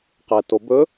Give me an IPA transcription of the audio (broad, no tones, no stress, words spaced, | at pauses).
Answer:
qɛtobɵ